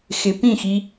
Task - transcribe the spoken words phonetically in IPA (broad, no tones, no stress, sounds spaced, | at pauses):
x ɪ p ĩ x i